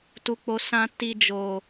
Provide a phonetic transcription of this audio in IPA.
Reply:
t u˨ k͡p o˨ s ã˧ t i˧ d͡ʒ o˨

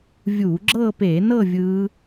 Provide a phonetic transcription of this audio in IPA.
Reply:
vʲ u˧˩˧ ɡ͡ǁ ɤː˥˧ p eː˧˩˧ n ɤ˥˧ vʲ ɯː˦˥

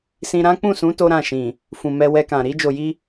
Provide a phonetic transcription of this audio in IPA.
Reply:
s ĩ˧ ɾ ã˦ k͡p ũ˦˨ s ũ˨˦ t o˦ ɾ ã˦˨ ʃ ĩ˨ | f ũ˨ m ɛ˧ w ɛ˧ k ã˨ ɾ i˧ d͡ʒ o˨ j i˧

